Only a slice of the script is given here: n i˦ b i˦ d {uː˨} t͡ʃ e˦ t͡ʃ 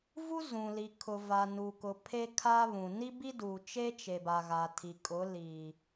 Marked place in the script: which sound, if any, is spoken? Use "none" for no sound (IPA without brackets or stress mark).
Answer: uː˨